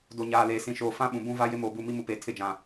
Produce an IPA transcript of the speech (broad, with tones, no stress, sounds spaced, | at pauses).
d o˨ ɲ aː˨ l eː˨ s ĩ˨ ʃ oː˨ f ã˦ ɓ ũ˨ b ũ˦ v a˦ j ɪ˦ m oː˨ b u˦˨ m i˦ m u˨ p eː˨ tʰ ɪ˦˨ d͡ʒ ã˨